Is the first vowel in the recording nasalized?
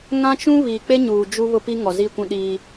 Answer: yes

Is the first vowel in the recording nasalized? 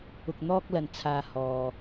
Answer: no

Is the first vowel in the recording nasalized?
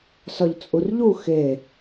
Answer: no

